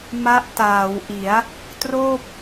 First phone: m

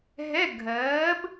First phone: ɦ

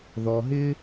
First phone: ð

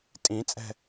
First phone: tʼ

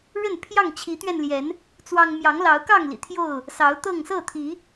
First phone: ɻ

